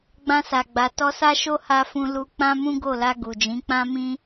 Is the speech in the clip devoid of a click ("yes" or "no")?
yes